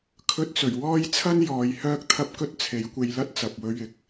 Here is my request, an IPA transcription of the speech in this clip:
kʰ ɵ˧ t̚ t͡s ɵ˨˩ ɥ w ɔː˥ j t͡sʰ ɐ˥ n j ɔː˨˧ j h œː˥ k̚ t̪ʰ ɐ˥ p̚ k ɵ˥ t̚ t͡sʰ e˨˥ j kʷ e˧ j l ɐ˥ t̚ t͡s ɐ˨ p̚ w ɵ˧ ɥ ɪ˨˥ k̚

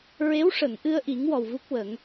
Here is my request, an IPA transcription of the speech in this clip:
ɹ e˧˥ w ʂ ə˨˩˨ ŋ ʔ ɨ˧ ə̯ ʔ i˨˩˦ ŋ w ɔ˨˩ w v u˦˥ k̚ w ə˨˩˦ ŋ

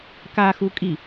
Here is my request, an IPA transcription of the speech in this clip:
k a x u kʼ i

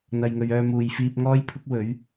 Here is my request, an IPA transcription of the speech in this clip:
n̪ ɐ˨ j ŋ ɵ˨ ɥ œː˧ m uː˨ j f iː˧ p̚ ŋ ɔː˥ j pʰ ʊ˥ k̚ w ɵ˨˥ ɥ

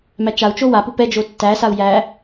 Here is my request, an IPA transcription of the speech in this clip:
m æ t͡ʃ a u̯ t͡ʃ o w a p u p ɛ d͡ʒ o tː æ s a u̯ j æ

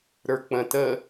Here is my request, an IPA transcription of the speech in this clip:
ɾ ə˞ k͡p ə̃ t ə

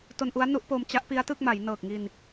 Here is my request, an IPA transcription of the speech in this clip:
t o˧ n ʔ u˦˥ a̯ n u˦˥ ʔ p oː˧ m t͡ɕ a˦˥ ʔ p i˦˥ a̯ t ɯ˥˩ k̚ m a˩˦ j n ɤː˨˩ k̚ ŋ i˧ n

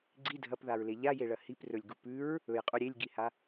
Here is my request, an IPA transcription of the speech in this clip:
ɡ͡ǀ i dʱ ɐ p ð a ɹ l e ʎ a j e ɭ ɐ h i p r ɵ lʲ ɡ u p ʉ ɹ | ɵ j qʼ u ɾʲ e lʲ ɡ i h a

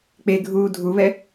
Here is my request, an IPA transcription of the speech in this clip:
k͡p e ɡʱ uː dʱ u β ɛ

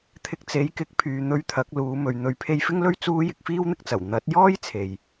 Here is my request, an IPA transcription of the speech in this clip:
t̪ʰ ɪ˧ k̚ t͡s e˨˥ j k ɪ˨˥ k̚ pʰ yː˨ n̪ ɵ˧ ɥ t̪ʰ ɐ˨˥ k̚ l uː˨˧ m ɵ˨ ɥ n̪ ɵ˨˥ ɥ pʰ e˧ j f ɪ˥ ŋ l ɵ˥ ɥ t͡s uː˥ j ɪ˧ k̚ f iː˥ w n̪ ɪ˥ k̚ t͡s ɐ˨˩ w n̪ ɐ˨˥ t̚ j ɔː˥ j t͡sʰ e˨ j

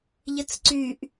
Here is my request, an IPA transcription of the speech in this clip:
ʎ ə t͡s ǀ y ʔ

